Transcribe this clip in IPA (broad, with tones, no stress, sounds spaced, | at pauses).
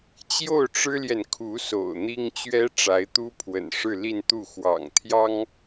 t͡ɕ j o˥˩ ʊ̯ ʈ͡ʂ ɻ̩˥ l j ɛ˨ n kʰ u˧˥ s o̰˨˩ ʊ̯ n̪ i˥ ŋ t͡ɕ ɥ ɛ˥ ʈ͡ʂ a˧˥ ɪ̯ t̪ u˥ pʰ w ə̰˨˩ n ʂ ɻ̩˥˧ l i˥˧ n t̪ u˥˩ x w ɑ̰˨˩ ŋ t̪ʰ j ɑ˥ ŋ